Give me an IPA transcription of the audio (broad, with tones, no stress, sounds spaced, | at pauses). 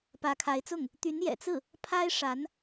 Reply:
p ä˧˥ kʰ a˧˥ ɪ̯ t͡s ʊ˥˩ ŋ | t̪ y˧˥ n j ɛ̰˨˩ t͡s ɹ̩˥˩ | pʰ a˥ ɪ̯ ʂ a˧˥ n